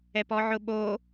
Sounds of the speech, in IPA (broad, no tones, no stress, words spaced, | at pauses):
ɛpɔʕʊɓo